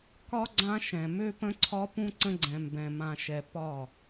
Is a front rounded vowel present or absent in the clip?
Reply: present